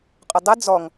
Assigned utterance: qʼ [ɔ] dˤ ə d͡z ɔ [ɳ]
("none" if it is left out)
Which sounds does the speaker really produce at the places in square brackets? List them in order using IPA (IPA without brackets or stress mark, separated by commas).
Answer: ʊ, ŋ